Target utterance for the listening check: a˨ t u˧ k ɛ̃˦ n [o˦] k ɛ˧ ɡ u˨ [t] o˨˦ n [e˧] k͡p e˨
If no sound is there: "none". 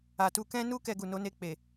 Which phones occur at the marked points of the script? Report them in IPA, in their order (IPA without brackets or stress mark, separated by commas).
u˦, n, e˧